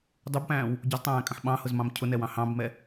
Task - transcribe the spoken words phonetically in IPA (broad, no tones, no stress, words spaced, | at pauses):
dˤubpæ̃ːw | ɟʊztˤæ̃ːkʼə̃ħ ɓɑ̃hʊzmɑ̃m cʰʊnɛwɑ̃ hɑ̃bmɛ